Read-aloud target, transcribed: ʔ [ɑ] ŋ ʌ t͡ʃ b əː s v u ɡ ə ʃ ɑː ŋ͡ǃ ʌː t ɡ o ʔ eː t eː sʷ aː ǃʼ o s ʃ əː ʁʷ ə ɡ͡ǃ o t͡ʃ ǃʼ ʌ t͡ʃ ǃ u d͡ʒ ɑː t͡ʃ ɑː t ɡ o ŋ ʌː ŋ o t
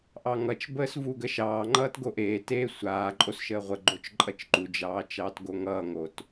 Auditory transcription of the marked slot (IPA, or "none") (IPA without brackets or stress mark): ɑ